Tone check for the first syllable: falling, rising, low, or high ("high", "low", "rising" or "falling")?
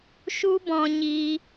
high